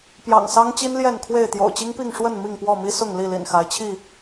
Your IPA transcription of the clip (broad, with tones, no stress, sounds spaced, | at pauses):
p j ɑ̰˨˩ ŋ s ɑ˦ ŋ t͡ɕ i˦ n l j ɛ˥˨ n kʰ w e˥˨ ɪ̯ t̪ j o̰˨˩ ʊ̯ t͡ɕ i˦ ŋ p i˥˨ ŋ ʂ w ə˥˨ n m i˥˨ ŋ p w ɔ˥˨ m i˦ s ʊ˥˨ ŋ l i˥˨ l ḭ˨˩ n x a˨˦ ɪ̯ t͡ɕʰ i˥˨